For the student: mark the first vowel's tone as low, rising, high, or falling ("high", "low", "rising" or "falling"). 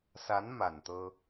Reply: rising